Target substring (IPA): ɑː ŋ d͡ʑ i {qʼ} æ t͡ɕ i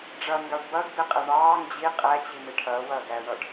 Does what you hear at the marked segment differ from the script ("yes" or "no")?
no